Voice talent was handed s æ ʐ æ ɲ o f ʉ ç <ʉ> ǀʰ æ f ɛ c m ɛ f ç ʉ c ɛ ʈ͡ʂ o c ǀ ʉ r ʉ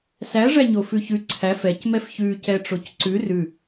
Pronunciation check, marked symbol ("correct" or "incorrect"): correct